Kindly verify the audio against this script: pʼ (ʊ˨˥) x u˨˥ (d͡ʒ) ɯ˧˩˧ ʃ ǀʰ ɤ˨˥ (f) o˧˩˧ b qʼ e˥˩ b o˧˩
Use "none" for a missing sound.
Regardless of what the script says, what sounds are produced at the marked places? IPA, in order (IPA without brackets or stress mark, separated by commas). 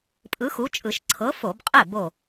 ɯ˨˥, t͡ʃʼ, f